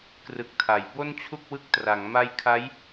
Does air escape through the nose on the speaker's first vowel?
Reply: no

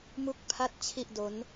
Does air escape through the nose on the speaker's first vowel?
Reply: no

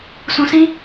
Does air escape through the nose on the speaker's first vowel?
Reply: yes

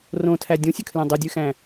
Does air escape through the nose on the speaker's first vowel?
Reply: yes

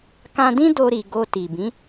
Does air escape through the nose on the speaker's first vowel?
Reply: yes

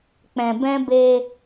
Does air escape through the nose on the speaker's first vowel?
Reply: yes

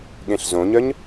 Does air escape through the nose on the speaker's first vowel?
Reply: yes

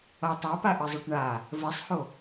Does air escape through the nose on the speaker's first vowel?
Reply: no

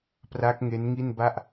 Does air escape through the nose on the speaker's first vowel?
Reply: no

